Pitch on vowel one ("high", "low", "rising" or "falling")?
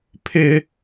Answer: high